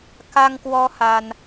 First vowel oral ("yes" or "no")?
yes